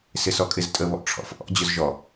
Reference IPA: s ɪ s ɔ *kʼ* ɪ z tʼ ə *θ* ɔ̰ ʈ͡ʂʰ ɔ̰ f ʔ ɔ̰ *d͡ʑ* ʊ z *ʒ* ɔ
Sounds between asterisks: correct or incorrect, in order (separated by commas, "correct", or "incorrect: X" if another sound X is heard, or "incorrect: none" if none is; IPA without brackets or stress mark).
correct, incorrect: β, correct, correct